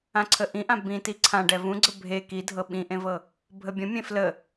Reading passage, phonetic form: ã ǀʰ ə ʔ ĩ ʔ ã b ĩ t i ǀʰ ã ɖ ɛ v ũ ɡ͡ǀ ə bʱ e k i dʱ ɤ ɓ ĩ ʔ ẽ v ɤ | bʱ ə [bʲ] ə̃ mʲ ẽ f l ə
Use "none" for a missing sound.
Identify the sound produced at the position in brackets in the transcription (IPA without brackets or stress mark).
bʲ